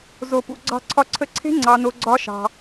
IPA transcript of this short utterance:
z o˧ p ṵ˧ ɡ͡ǀ ɑ̤˧ ǀʰ ɒ˧ ǀʰ ə˧ ǀʰ e̤˦ ŋ͡ǀ ɑ˦ n o˦ ɡ͡ǀ ɒ˦ ʃ ɑ̤˧

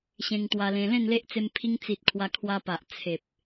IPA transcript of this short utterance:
ɕ ẽ˧ ŋ t̪ w a˧ l ẽ˧ l ẽ˥˧ n l e˦ ʔ t͡s e˧ m pʰ i˧ ŋ t͡s i˨ t̚ kʰ w a˧ kʰ w a˧ p a˨ ʔ t͡sʰ e˨ p̚

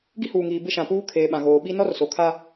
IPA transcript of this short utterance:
ɡ i˦ h uː˨ ŋ iː˨ b ɪ˦ ʃ ã˨ p uː˦ kʰ eː˨ ɓ ã˨ ɣ oː˨ ɓ i˦ n ɔ˦ r s o˨ kʰ a˦

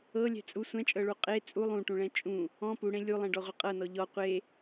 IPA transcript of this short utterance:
ɤ lʲ ɛ̤ t͡sʼ u sʷ ɛ̃ t͡ʃʼ ɤ ɭ u qʼ e t͡sʼ u lˠ ũ ʈ ũ ɭ ɛ̃ t͡ʃʼ ũ | ɔ̃ p u ɽ ẽ lʲ u lˠ ɛ̃ ɖ ɔ ʁʷ ɤ qʼ ɤ n ɔ ʎ ɔ qʷ e

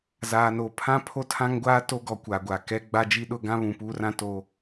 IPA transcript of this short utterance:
z aː˨ n o˨ pʰ ã˦ pʰ o˦ tʰ ã˦ ŋ ɡʷ aː˦ t o˦ ɡ ɔ˨ kʷ a˨ ɡʷ a˨ k ɛ˦ ɡ͡b a˦ d͡ʒ i˦ ɗ ʊ˦ ɡ ã˦ β ũ˨ p uː˦ r ã˦ t o˦

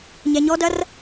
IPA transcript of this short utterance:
ɲ ɛ ɲ ɔ d ɐ r

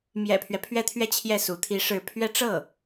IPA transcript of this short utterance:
m j ɛ̰˨˩ pʰ ɥ ɛ˦ pʰ ɥ ɛ˥˧ t̪ʰ ɥ ɛ˥˧ t͡ɕʰ j ɛ˥˩ s u˧˥ t̪ʰ i˧˥ ʂ ɻ̩˧˥ pʰ ɥ ɛ˥ ʈ͡ʂ ɤ˥˩

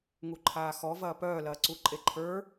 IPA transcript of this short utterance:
ŋ u ǃʰ aː x ɔ v ɐː p œː l ɐː ǀ u ǃʼ e ǃʰ ə˞

